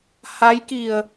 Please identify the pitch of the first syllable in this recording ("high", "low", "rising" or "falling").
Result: rising